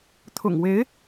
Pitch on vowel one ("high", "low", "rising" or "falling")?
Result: low